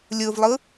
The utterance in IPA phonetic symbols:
lʲ ɯ v lˠ ɯ

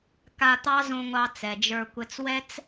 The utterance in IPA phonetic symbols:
k a˧ t̪ ɑ˦ z õ˧ ŋʷ ɑ˧ t͡s ɛ˨ d͡ʒ ə˞˧ kʷ ɘ˧ t͡s w ɛ˦ t͡s

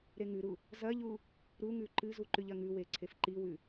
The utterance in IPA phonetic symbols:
ɾ e ŋ ʉ ɾ u | z ɐ ʎ u | ɾ u ŋ ʉ ǃ ɨ z u ǃ ʉ ʎ ɐ ŋ ʉ w e ǀʰ e f ǃ i w ʉ

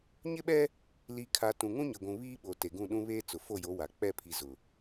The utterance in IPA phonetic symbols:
ɲ ɪ˦ ɓ ɛ˦ | l i˨ kʰ a˨ t ũ˨ ŋ ũ˦ ɲ ɪ˨ ɡʷ ũ˨ β iː˦ ɓ o˨ t e˨ ɡ ũ˦˨ ɗ ũ˦ β eː˦ t͡s ʊ˨ f o˦˨ j o˨˦ w a˨ k͡p ɛ˦˨ pʰ i˨ z ʊ˨

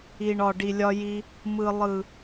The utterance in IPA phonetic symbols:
i˨ ɳ ɒ˨ ɖ i˨ lʲ ɒ˧ j i˧ | m ɯ˨ lˠ ɯ˨

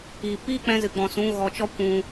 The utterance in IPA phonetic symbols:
i˨ p iː˦ k͡p ɛ̃˧ z ɨ˨ ɡ͡b ɔ̃˨ s ũ˨˦ ɣ ɔ˨ t͡ʃ ɔ˦ kʷ ũ˨

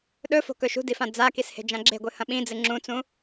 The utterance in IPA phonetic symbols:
ɗ ɵ f o̤ k ɵ ʃ ṳ d i f ã d͡z a k i s h e̤ d͡ʒ ã ɡ͡ǁ e̤ ɡʷ ɨ h ɐ̃ ɓ ĩ d͡z ɨ ŋ͡ǁ ũ t͡s ũ

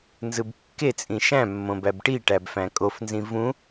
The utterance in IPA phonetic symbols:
n z ɯ b kː e t͡sʼ ĩ ʃ æ̃ mː õ b æ b ʈ i ʈ æ b f æ̃ kʼ o f n z ĩ v ũ

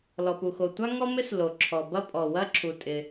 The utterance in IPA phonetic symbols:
l ɔ˩ p u˩ x o˩ tʷ a˥ ŋ ɔ˥ m ɪ˥ s l o˩ ǁʰ ɔ˩ b ɐ˥ pʼ ɔ˩ w ɐ˥ ǁʰ u˩ tʼ ɪ˩

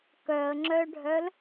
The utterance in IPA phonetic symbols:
k œ ə̯ ŋ͡ǁ œ ɖʱ œ l

